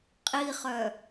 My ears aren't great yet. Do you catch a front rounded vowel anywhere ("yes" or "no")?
yes